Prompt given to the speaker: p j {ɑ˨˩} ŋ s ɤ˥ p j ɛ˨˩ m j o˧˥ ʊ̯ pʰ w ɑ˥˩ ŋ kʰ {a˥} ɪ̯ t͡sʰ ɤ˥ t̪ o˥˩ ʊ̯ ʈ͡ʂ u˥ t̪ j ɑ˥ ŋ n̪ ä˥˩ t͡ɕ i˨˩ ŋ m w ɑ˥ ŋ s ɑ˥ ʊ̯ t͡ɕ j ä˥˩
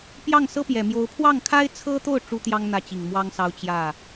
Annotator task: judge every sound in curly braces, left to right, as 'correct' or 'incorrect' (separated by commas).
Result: incorrect, correct